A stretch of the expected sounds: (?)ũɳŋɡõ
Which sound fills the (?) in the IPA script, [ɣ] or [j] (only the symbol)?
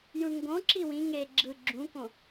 j